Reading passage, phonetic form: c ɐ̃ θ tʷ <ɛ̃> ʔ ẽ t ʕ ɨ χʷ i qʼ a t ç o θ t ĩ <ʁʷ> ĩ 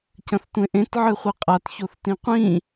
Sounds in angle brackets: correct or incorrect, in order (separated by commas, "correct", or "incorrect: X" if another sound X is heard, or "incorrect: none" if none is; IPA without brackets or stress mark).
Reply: incorrect: ẽ, incorrect: qʷ